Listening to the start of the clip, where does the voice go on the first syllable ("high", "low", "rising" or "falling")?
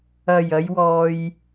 low